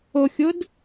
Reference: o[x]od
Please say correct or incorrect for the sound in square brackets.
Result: incorrect